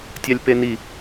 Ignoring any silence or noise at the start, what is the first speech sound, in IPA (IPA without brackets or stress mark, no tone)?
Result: tʲ